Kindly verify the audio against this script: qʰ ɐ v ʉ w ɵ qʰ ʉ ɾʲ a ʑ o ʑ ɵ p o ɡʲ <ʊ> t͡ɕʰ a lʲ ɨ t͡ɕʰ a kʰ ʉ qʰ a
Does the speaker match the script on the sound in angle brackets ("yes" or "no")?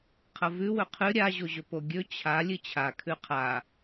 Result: no